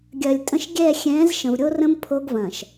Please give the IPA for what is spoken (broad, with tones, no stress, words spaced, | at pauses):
ɡʲɐ˨lʲtʼə̃˦ʃ ɡʲɛ˦˨ xʲɛ̃ː˨˦zʃə̃˨vɾʲo˦rə̃˦m pʰo˦ɡvɐ̃˨ʃ